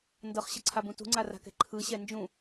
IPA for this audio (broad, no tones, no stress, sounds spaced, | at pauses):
n d ɤ χ ɕ ə ǀʰ a b ũ t ṳ ŋ͡ǀ a r a̤ k ɛ̤ ǃʰ ɯ ɕ ɛ n d͡ʒ ũ